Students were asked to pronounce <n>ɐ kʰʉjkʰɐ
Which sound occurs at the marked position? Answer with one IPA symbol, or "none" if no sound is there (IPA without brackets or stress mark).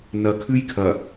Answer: n